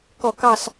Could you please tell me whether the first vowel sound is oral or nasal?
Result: oral